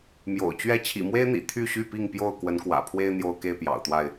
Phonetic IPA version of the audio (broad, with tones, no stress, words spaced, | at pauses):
mjo̰˨˩ʊ̯t͡ɕɥɛ˥˨ t͡ɕʰḭ˨˩mwe˦ɪ̯n̪ḭ˨˩ t̪ʰy˥˨ɕy˥˨pi˥˨ŋpjo˥˨ʊ̯ kwə˨˦nkwä̰˨˩pʰwe˦ɪ̯ n̪jo˦ʊ̯ke˥˨ɪ̯pjɑ̰˨˩ʊ̯t̪wa˥˨ɪ̯